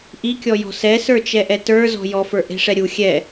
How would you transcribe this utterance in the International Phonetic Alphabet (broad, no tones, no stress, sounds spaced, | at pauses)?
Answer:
ʔ i kʲ ɔ j ɔ̤ s ɛ s ə˞ t͡ʃ ɛ ʔ ɛ t ə˞ z ɔ̤ j ɔ f ə˞ ʔ e̤ ʂ ɛ ɾʲ u xʲ ɛ